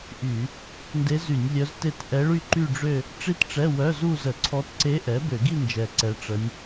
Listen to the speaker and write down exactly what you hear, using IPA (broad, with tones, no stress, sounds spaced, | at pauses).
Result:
ʔ y˧˩˧ | n d e˧˥ z y˧˩˧ nʲ lʲ œ˧˥ z t e˥˧ t ʔ ɛ˧˥ ɭ y˥˧ ǃ y˥˧ ɖ͡ʐ ø˥˧ | ʈ͡ʂ i˥˧ t ʈ͡ʂ ɛ˧˥˧ w œ˧˥˧ z u˥˧ z ə˧˩˧ ǀʰ ɔ˧˥ t ǀ e˧˥ ʔ ɛ˩˥ b ø˧˩˧ ɡ i˥˧ n d͡ʒ ɛ˨˩ ǀ ɛ˧˥ ʈ͡ʂ ə˧˥ nʲ